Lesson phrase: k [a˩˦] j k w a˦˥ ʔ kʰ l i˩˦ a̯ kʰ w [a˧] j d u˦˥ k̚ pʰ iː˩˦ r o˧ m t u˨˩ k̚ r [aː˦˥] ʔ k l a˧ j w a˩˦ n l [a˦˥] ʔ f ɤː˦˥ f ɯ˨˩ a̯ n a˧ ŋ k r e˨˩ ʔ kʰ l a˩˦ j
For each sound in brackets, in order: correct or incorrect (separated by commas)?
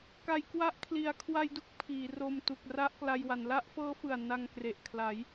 correct, correct, incorrect, correct